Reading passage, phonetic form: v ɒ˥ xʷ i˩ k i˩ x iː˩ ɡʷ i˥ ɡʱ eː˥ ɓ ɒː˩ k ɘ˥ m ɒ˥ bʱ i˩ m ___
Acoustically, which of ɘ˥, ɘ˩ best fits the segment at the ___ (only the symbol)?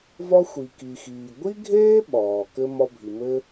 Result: ɘ˥